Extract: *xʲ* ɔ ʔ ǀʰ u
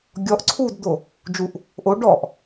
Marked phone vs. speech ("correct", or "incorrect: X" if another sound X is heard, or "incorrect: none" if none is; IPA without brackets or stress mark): incorrect: ɡʲ